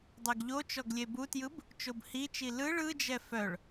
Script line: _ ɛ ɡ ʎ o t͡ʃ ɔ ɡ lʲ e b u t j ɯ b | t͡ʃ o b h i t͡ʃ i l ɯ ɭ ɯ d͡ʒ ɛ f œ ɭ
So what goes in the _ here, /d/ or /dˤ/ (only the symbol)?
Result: dˤ